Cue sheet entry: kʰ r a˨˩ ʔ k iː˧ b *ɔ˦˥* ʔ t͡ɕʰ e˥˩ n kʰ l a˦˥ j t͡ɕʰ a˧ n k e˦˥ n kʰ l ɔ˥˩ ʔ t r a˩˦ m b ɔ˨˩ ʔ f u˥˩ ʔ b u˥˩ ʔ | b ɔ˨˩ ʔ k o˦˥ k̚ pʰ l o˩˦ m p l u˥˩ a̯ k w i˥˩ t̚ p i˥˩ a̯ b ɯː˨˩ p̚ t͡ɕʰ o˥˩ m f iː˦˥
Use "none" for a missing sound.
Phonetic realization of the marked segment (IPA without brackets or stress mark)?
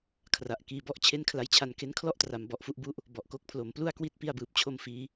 ɔ˥˩